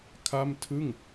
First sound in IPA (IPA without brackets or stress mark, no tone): kʰ